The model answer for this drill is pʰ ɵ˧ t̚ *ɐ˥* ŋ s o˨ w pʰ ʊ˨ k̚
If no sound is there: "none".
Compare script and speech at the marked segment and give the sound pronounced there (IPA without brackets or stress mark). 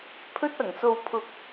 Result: ɐ˨˩